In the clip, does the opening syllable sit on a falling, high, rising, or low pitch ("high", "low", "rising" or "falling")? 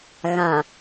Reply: low